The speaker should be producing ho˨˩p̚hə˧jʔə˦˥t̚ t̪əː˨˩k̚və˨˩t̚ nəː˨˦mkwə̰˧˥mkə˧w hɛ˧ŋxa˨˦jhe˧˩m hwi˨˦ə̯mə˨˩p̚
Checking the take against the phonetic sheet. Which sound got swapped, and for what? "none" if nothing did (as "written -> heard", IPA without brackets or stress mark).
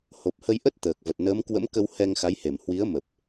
none